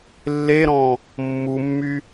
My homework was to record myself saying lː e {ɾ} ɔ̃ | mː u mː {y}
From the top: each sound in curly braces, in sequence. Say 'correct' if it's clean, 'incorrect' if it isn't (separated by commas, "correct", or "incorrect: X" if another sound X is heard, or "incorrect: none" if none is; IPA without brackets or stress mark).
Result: correct, correct